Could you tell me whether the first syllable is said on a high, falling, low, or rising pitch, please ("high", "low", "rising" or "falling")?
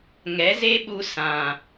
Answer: rising